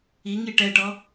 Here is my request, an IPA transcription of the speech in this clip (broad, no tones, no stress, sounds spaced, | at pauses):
i ŋ i ʈ ɛ ʈ ɔ